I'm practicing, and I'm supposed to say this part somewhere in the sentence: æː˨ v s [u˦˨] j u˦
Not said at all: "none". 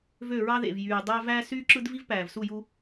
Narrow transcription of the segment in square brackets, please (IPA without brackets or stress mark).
u˦˨